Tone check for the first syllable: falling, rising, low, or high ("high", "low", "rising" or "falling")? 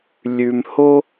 low